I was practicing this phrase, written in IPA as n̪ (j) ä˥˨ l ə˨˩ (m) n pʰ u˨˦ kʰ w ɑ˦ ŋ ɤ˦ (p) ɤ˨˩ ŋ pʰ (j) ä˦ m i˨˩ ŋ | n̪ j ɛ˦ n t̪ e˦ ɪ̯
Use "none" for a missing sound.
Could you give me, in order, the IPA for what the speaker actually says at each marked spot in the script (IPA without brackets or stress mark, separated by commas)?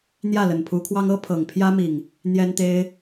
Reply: j, none, pʰ, j